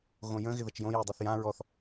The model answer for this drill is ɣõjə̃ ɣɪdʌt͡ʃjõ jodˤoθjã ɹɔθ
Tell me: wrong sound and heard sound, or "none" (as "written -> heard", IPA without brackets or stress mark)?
d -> ð